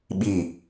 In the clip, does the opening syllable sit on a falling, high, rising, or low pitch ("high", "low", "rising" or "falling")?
falling